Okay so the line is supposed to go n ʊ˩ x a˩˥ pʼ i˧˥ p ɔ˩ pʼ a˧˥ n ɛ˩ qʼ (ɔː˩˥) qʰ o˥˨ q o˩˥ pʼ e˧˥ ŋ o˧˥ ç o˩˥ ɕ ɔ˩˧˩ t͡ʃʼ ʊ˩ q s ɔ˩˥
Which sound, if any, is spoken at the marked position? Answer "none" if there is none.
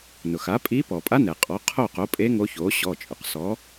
ɔ˩˥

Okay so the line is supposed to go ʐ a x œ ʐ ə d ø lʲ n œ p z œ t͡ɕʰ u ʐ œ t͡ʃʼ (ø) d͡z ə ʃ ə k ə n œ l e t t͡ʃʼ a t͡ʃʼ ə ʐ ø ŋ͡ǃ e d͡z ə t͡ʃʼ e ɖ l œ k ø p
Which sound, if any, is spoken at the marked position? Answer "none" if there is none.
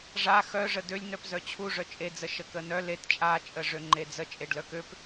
e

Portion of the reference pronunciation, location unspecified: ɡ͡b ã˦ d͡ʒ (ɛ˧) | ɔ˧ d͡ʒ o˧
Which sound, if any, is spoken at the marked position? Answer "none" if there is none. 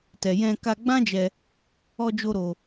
ɛ˧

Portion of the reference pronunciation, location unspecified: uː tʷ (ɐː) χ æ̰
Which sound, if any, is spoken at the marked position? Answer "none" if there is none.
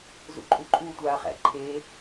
aː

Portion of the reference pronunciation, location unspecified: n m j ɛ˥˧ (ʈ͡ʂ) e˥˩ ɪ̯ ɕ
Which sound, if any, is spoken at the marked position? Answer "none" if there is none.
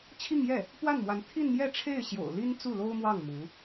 ʈ͡ʂʰ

